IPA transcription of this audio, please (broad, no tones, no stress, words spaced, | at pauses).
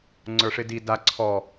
ŋ͡ǀə˞ʂɪdi da ǀʰɔ